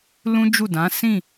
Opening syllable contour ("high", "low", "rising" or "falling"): high